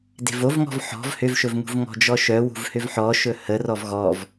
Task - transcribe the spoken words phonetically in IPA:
de̤vovŋɔ̤v ħɔ̤v hʏvʃɵvŋṳv ŋɔ̤d͡ʒɔʃœ wṳvhʏvħɔʃɵ hərɔv ɣɔv

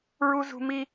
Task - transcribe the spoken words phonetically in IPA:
ɹu˥zṳ˥mi˥

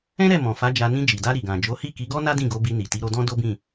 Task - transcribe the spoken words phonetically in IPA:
ɛ̃˦ɾɛ˦˨ mɔ̃˨fa˨˦ d͡ʒa˧ nĩ˧d͡ʒi˨da˧ ɾi˨ɡã˨d͡ʒo˨˦ hi˦˨ki˨˦ɡɔ˦na˦ dĩ˦˨ɡo˨˦bi˧ni˨ ti˨˦ɾo˧dɔ̃˦ do˦bĩ˦˨

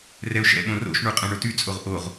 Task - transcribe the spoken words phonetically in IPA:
rɛʊ̯ʃɛ̰ɓõ ro̰ʃɳu qʼɛ̃ɳotyt͡sʼoʁ ʔoʁ

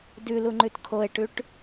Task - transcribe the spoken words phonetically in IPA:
dʉlu ŋ͡ǃʉtkʰoe̯ʈʉʈ

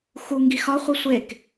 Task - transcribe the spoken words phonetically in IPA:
xu ŋɡixɒ χʷisʷek

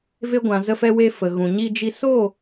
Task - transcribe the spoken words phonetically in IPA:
ve˧ɡʷã˨ zə˧fɛ˧we˧ fə˨ ɣũ˨ɲi˧ d͡ʒi˧ so˦˨

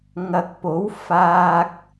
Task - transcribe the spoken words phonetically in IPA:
ŋɐ˧k̚ po˨˥w faː˧k̚

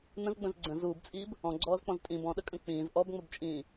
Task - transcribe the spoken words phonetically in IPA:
nə̃zɡ͡bə̃z ɡ͡ǀə̃z uːbt͡sʼiːb | ɔ̃ɡ͡ǀɔːzk͡pɔ̃z tʼĩb ɔ̃ɗəkʼə̃ k͡pĩːz ʔɔbŋ͡məbt͡ʃʼĩː

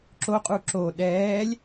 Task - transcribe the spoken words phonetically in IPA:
ǁoqʼu ǁo ɗɛːlʲ

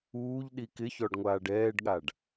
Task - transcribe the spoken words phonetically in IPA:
uːʎ ɗikɪçɔɖ ŋʷaːɖɛːɖɠaɖ

